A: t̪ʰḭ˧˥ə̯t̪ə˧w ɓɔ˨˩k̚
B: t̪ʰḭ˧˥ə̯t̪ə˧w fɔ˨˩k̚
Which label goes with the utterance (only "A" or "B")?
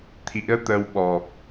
A